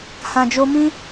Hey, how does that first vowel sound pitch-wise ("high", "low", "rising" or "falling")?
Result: low